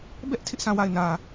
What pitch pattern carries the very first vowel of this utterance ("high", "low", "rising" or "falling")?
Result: high